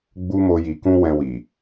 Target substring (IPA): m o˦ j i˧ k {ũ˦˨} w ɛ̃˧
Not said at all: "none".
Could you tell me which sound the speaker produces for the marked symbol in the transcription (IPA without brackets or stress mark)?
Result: ũ˦